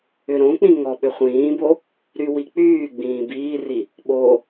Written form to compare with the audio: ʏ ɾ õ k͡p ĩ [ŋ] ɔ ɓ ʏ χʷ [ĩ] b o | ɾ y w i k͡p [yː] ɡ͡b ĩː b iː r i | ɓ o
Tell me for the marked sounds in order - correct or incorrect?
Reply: correct, incorrect: ĩː, correct

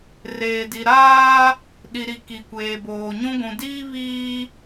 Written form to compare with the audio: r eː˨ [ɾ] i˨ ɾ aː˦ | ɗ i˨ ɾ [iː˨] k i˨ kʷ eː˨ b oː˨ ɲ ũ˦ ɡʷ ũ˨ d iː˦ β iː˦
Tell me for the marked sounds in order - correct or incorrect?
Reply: incorrect: d, incorrect: i˨

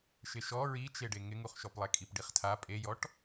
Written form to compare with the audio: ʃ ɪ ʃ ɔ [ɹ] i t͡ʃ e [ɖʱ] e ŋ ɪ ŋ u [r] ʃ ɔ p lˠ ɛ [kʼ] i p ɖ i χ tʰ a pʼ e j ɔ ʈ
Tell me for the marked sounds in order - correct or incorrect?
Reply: correct, incorrect: ɖ, incorrect: χ, correct

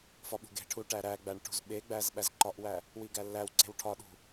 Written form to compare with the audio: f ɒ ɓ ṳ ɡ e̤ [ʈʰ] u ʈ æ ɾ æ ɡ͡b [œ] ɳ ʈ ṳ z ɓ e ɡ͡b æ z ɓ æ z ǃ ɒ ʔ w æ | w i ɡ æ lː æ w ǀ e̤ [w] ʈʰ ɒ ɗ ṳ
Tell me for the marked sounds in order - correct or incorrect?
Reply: correct, incorrect: æ, correct

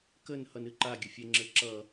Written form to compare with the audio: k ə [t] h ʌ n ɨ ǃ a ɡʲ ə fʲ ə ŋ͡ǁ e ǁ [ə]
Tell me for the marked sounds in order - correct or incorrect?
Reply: incorrect: n, incorrect: ʌ

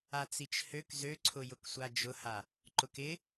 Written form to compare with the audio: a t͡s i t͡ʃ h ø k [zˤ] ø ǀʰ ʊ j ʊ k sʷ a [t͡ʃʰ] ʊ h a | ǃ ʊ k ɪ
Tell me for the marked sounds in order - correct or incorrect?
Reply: incorrect: z, incorrect: d͡ʒ

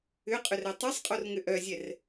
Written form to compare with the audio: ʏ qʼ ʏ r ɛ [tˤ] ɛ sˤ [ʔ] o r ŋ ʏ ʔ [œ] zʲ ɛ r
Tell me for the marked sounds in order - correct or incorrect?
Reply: correct, incorrect: qʼ, correct

